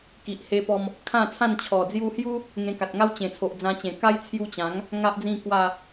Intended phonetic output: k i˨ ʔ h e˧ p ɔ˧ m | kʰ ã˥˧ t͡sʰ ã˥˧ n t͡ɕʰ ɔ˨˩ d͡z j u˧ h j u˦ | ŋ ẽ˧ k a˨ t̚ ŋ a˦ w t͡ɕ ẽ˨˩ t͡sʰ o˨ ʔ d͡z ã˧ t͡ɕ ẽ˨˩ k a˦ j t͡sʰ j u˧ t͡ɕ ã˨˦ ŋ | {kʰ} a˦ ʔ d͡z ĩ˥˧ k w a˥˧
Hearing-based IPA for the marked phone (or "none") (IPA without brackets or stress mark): ŋ